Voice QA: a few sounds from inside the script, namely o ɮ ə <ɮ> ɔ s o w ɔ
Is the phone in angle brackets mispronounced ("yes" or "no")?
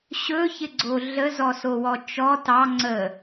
yes